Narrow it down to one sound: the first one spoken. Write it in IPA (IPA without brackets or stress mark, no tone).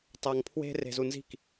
tˤ